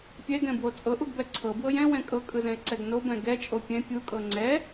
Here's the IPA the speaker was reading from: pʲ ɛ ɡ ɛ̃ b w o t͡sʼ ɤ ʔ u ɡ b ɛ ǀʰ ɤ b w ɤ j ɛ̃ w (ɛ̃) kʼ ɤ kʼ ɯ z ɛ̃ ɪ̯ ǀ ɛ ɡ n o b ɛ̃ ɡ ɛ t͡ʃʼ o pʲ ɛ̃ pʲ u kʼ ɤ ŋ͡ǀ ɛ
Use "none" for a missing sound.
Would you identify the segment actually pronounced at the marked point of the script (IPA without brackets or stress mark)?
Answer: ɛ̃